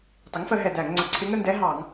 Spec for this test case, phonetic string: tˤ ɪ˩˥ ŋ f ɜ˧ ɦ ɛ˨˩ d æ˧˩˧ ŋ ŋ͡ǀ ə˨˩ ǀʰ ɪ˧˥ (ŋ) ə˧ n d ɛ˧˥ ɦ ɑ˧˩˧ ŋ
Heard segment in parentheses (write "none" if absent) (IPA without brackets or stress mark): ŋ